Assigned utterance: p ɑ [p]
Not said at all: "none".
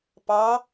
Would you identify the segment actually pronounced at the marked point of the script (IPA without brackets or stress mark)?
none